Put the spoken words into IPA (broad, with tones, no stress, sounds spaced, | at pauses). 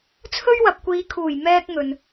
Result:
t͡sʰ ɵ˥ ɥ w ɐ˨ p̚ kʷ iː˨˧ kʰ uː˨˩ j m ɛː˥ k̚ ŋ ɵ˨ n